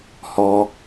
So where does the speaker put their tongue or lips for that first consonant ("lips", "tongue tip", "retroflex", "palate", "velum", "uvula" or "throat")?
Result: throat